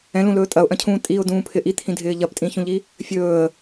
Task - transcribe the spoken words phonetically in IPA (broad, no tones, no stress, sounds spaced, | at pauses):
ɛ̃ l ũ l ɵː tʼ ɐ ʊ̯ ʔ ɐ̃ cʰ ũː tʼ i ʊ̯ d ũː pʰ ɪ ʔ i t̪ʰ ĩ dʱ ɪː ʎ ɐ p tʼ ĩ ç ũ ʎ i | fʲ ɵː ə̯